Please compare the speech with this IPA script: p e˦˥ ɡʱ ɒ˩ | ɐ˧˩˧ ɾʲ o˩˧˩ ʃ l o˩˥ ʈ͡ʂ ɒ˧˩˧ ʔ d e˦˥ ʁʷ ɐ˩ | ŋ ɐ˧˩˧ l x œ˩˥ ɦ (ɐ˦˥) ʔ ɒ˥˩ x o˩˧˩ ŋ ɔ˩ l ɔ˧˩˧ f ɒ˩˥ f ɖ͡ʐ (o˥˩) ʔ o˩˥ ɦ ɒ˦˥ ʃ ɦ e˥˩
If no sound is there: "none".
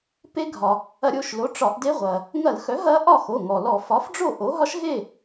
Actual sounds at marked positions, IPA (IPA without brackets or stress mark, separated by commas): ɐ˦˥, o˥˩